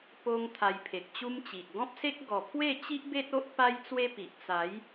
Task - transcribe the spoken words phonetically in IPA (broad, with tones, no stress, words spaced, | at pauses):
po˧ŋ t̪ʰa˧jpʰe˨k̚t͡ɕu˦mt͡ɕi˨ʔ ɡɔ̃˦p̚se˦k̚ ɡɔ˨˩ pʰwe˥˧t͡ɕi˦ʔbe˦t̚ o˦ʔ pa˦jt͡swe˦pi˨ʔ t͡sa˨˦j